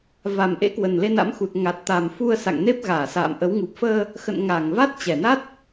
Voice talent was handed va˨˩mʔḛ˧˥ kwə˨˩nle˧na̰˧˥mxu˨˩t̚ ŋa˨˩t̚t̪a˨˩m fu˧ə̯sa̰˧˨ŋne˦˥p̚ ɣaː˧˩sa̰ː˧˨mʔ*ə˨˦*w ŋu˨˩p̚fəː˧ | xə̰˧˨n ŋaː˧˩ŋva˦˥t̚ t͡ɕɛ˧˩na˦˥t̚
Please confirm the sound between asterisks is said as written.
yes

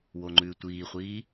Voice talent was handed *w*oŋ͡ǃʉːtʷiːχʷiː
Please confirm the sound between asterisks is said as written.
yes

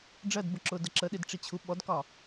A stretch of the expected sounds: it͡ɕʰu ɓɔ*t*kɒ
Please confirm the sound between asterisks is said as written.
no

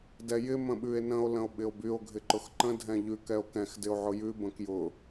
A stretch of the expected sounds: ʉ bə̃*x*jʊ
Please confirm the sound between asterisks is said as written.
no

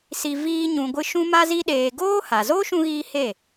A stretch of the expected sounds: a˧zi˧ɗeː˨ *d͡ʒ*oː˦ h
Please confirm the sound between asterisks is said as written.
no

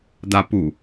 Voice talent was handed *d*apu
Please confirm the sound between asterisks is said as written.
yes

